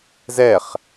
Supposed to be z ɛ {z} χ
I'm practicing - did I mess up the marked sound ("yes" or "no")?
yes